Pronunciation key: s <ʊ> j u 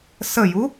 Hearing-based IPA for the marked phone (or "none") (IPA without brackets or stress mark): ə